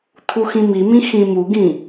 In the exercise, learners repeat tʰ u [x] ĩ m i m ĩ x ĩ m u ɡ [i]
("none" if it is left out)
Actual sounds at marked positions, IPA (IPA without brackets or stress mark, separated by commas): x, ĩ